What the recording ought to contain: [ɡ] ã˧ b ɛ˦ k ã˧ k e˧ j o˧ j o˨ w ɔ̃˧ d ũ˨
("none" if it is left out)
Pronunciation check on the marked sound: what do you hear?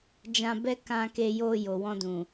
d͡ʒ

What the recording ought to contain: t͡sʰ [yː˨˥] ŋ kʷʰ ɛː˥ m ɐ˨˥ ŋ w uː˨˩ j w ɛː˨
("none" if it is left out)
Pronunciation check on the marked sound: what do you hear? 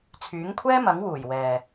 yː˨˥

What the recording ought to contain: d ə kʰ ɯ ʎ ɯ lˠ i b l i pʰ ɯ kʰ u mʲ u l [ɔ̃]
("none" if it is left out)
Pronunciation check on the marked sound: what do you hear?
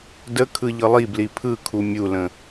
ə̃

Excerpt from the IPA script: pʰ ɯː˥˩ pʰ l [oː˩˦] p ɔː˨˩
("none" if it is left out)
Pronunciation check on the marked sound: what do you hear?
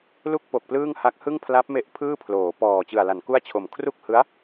oː˩˦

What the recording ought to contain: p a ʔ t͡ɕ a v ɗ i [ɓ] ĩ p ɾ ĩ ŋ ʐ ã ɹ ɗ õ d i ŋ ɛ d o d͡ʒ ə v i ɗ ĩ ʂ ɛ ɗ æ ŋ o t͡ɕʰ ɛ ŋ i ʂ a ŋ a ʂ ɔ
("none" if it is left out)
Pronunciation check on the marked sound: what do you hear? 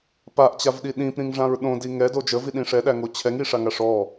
ɗ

